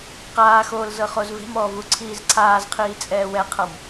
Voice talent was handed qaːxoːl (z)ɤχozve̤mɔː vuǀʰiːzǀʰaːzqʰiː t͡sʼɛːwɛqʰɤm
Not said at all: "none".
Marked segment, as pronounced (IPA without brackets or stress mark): z